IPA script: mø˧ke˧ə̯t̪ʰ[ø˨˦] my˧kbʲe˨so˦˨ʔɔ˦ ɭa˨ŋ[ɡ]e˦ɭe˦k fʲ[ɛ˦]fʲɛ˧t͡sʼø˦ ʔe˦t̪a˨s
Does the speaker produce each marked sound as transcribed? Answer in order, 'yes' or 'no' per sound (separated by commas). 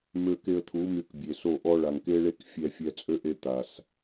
no, no, no